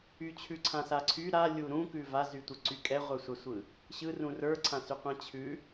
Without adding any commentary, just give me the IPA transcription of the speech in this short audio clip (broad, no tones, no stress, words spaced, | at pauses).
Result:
yt͡ɕʰʉ ǀʰãsaǀʰy ɾa lʲuɾũkʉ vazytʷɯǀy kʼɛʁʷə˞sʷasʷɯ | ɕɯrũ rə˞ǀʰãsyqʷã t͡ɕʰʉ